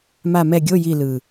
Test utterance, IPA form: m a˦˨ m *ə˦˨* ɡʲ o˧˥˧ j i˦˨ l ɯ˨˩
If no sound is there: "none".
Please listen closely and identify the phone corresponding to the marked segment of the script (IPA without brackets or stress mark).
ɛ˦˨